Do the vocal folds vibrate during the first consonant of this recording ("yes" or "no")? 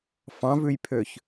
no